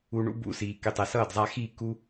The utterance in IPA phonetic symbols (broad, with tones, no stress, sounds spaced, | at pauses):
u˧ ɳ ṵ˦ b ṵ˧ s iː˨ k e˦˨ tˤ ɛ˧ s ʌː˦˨ d zˤ a˧ x iː˦˨ k u˦